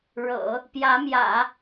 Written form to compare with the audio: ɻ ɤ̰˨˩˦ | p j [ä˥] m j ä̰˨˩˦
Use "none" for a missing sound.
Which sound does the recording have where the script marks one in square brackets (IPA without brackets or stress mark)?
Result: ä˧˥